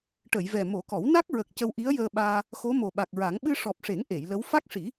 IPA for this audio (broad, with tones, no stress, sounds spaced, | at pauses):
ʈ ə˨˩˨ j v ɛ˨˩ m o˨˩˦ k ɔ˨˩˦ w n a˦˥ k̚ ɹ ə˨˩ k̚ c ə˧ w ʔ i˧˥ ə̯ j əː˧ ɓ aː˧ | x o˧˥ m o˨˩ ɓ a˨˩ k̚ ɹ a˨˩˦ ŋ ɓ ɨ˧ ʂ ɔ˨˩ p̚ ʂ e˨˩˦ ŋ ʔ e˨˩˨ j l ə˧˥ w f a˦˥ k̚ ʂ i˨˩˦